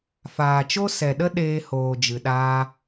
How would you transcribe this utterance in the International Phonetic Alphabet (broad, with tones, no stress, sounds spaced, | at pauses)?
f aː˨ t͡ʃ o˦ s ɛ˨ ɗ ə˦ ɗ eː˧ h oː˨ d͡ʒ ɨ˨ ɗ aː˧